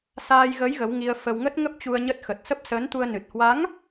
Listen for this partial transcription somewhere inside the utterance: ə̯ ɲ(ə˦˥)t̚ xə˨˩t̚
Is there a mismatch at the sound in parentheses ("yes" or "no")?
no